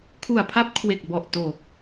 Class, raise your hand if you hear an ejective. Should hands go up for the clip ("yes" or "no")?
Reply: no